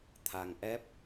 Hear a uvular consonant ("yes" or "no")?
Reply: no